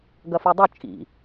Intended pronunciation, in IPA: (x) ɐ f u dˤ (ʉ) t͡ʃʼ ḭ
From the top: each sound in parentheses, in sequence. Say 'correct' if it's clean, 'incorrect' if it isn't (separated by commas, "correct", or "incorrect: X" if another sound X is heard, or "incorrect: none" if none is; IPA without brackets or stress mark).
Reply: incorrect: ɡ, correct